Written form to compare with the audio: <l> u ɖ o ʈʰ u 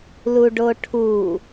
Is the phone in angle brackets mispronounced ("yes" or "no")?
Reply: no